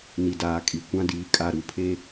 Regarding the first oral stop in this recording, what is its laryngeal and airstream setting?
plain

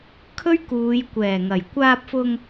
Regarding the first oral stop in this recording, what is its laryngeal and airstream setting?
aspirated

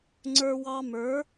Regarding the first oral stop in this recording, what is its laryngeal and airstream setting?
click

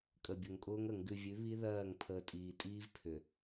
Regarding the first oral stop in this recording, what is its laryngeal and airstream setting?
ejective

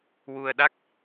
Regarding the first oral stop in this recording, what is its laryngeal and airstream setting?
implosive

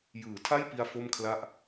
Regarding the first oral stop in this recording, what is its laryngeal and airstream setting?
aspirated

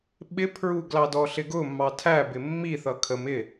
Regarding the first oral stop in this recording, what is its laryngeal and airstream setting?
implosive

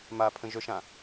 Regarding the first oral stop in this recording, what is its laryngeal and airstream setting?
aspirated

